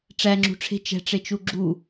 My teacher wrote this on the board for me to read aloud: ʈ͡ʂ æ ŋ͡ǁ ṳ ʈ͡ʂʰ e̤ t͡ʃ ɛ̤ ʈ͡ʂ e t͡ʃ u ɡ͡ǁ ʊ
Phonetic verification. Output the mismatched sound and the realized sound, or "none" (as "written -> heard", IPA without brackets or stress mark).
ʊ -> u